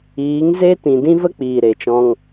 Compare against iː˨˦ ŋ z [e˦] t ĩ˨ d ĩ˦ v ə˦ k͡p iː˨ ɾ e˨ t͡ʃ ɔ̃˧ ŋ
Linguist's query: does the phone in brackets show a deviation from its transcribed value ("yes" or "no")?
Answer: no